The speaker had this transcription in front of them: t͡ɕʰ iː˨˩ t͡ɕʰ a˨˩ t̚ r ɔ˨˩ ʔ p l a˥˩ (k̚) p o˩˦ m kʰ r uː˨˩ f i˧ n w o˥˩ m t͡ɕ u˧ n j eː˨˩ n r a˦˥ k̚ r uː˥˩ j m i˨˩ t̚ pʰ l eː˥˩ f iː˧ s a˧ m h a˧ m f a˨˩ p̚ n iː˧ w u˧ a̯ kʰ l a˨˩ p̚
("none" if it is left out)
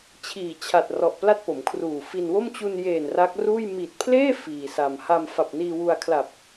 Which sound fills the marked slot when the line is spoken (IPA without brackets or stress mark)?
t̚